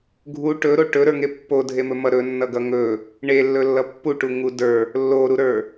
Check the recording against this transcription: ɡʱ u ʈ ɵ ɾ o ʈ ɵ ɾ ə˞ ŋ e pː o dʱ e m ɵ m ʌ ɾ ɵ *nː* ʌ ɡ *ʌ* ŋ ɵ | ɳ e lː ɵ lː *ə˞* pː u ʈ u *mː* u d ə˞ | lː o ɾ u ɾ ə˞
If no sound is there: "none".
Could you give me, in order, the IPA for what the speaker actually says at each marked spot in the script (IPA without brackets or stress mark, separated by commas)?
nː, ʌ, ʌ, ŋ